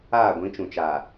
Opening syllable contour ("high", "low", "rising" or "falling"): falling